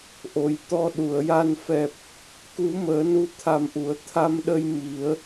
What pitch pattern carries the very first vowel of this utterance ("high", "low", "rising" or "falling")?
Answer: low